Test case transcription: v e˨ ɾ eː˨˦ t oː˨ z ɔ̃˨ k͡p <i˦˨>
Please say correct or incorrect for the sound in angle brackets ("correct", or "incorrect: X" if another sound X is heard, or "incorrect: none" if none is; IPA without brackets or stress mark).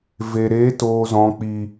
incorrect: i˨